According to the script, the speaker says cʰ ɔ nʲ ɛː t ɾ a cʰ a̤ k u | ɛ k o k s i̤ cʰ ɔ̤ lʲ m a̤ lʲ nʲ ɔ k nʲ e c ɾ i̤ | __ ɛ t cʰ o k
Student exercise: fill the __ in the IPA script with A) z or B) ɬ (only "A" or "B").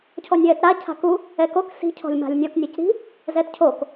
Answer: A